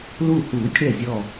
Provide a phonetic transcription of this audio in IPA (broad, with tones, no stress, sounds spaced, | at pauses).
l u˧˩ h uː˨˩˦ tʲ ɽ ɛ˧˩ zʲ ɔ˧˩